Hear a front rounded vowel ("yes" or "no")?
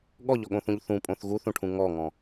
no